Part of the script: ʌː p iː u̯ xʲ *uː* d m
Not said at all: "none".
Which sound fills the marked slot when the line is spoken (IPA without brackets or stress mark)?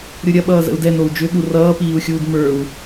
uː